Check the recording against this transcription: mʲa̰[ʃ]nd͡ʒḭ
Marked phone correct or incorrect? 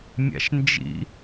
correct